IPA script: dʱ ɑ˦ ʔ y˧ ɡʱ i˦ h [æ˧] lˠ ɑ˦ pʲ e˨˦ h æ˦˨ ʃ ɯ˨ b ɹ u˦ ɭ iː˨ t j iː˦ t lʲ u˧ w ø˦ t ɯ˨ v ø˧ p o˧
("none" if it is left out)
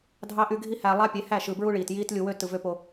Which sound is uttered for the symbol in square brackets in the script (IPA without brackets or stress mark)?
æ˧